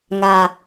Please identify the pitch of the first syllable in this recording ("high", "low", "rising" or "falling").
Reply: low